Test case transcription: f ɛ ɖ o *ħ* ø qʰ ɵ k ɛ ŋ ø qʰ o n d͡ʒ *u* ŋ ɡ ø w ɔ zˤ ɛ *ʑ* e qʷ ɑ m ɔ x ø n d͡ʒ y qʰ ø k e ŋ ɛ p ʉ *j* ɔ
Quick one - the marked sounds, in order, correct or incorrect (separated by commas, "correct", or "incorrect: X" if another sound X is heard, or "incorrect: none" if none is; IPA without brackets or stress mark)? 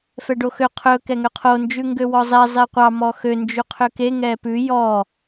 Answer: incorrect: x, incorrect: ʉ, incorrect: zˤ, correct